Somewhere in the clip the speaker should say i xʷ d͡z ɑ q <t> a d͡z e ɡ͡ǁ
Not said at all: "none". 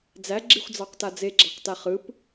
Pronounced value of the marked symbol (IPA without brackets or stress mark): t